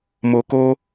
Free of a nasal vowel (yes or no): yes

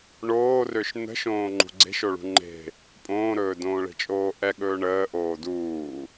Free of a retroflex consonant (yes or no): no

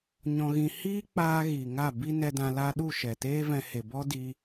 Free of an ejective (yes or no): yes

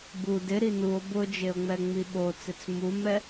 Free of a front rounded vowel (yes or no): yes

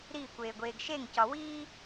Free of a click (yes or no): yes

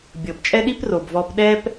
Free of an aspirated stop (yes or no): yes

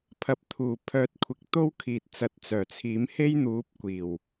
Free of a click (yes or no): yes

